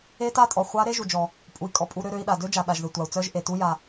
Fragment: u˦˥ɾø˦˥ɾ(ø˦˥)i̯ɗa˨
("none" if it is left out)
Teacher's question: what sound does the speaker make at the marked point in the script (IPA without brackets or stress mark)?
ø˦˥